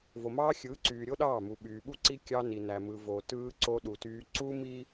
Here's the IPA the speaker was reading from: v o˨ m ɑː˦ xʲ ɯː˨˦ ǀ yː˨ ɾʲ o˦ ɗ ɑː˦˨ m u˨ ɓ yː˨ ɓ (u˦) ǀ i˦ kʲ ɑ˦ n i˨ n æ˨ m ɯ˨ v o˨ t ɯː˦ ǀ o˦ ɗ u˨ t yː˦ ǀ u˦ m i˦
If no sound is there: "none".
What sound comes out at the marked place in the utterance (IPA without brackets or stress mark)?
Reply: u˦